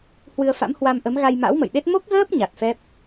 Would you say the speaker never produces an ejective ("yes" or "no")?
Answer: yes